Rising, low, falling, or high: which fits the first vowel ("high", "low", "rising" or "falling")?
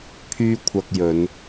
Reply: high